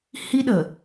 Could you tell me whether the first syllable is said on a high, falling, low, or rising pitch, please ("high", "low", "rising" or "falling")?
high